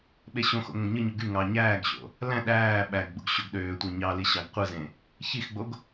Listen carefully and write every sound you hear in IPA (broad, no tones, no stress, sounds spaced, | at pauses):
ɓ e ɕ õ x o̰ ŋ õ ɡ ɲ ɯ ɲ u ɡ y ŋ ɑ ɲ æː ɡ ɕ o̰ | l æ̃ ɗ æː ɓ æ ɡ ɡ͡b ṵ ɡ ɕ o ɡ ɗ øː tʷ æ ɲ ɑ l i ɕ ɑ ɡ qʷ ɯ z ẽ | ç i x ɡ͡b o ɡ